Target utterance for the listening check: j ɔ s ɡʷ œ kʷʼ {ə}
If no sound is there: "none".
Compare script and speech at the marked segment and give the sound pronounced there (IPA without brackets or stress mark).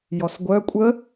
ə